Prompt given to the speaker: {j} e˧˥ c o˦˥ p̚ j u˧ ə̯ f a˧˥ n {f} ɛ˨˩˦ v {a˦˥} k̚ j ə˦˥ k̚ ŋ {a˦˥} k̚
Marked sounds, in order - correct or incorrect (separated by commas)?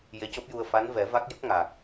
correct, incorrect, correct, incorrect